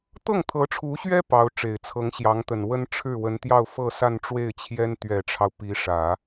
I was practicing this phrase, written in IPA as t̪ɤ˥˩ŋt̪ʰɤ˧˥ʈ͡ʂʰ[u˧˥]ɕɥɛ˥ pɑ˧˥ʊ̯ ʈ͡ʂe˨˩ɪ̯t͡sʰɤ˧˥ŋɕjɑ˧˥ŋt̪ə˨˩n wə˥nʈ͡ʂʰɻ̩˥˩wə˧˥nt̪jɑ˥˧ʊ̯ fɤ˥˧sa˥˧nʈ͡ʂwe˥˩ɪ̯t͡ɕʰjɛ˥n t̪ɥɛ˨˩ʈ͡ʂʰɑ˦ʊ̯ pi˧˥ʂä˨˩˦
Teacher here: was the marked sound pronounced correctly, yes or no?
yes